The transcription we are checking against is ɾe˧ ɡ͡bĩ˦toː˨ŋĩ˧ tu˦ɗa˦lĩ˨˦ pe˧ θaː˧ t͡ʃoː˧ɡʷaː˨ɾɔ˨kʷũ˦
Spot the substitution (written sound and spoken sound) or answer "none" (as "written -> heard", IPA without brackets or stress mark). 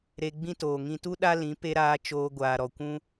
θ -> ɾ